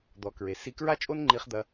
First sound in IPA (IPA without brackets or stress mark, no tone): d̪